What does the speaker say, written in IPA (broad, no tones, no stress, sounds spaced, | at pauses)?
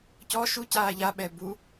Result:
c ɔ ʃ u c aː ʎ a ɓ ɛ b u